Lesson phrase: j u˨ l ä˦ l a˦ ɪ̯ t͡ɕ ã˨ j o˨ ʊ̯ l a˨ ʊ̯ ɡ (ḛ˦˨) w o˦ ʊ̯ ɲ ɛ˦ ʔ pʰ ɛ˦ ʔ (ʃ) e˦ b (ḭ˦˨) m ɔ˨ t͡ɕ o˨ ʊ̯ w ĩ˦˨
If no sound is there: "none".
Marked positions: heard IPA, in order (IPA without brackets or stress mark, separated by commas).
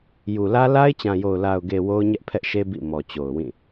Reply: e˨, ʃ, ḭ˦˨